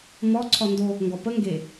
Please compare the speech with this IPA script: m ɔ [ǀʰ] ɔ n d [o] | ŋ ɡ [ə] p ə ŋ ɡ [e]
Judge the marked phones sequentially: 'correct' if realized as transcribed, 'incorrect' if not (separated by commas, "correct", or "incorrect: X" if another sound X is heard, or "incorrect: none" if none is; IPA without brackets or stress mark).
correct, correct, incorrect: ɔ, correct